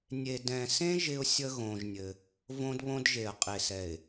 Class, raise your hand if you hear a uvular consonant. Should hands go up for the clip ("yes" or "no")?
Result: yes